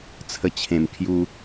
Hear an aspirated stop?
yes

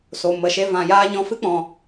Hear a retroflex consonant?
no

